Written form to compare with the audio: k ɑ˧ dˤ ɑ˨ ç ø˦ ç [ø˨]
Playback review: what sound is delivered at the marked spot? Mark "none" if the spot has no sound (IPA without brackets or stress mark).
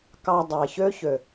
ø˨